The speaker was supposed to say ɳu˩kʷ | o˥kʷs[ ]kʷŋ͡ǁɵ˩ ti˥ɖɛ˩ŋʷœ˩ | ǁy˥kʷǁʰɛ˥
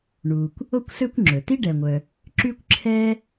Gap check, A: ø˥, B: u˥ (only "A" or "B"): A